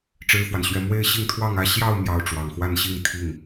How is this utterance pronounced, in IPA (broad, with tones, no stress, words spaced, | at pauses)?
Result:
ʈ͡ʂɻ̩˥fwa˨nɕɥɛ˥ mwe˥˧ɪ̯ ɕi˥˧ŋt̪ʰwɑ˥˧ŋä˥˧ ɕjɑ˥˧ʊ̯ mjɑ˥˩ʊ̯ʈ͡ʂwɑ˨˩ŋ xwa˥˧nɕi˥˧ŋ t̪ʰi˥˩ŋ